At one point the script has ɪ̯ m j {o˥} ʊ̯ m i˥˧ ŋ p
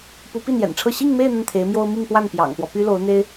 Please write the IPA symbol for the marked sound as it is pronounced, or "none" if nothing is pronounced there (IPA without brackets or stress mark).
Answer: o˥